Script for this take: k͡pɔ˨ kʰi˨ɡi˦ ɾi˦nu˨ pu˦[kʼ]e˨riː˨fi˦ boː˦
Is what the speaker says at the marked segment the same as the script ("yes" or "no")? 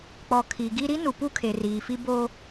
no